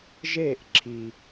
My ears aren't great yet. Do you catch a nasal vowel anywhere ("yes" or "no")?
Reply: no